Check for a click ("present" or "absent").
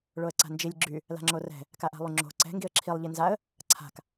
present